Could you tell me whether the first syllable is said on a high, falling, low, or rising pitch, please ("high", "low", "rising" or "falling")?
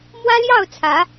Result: high